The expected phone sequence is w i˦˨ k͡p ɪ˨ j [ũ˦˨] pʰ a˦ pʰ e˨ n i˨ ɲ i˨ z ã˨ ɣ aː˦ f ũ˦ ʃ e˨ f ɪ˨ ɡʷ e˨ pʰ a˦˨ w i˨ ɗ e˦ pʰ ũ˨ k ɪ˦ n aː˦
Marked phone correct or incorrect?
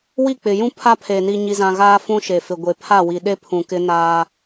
incorrect